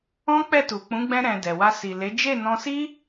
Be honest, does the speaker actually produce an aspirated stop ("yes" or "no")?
no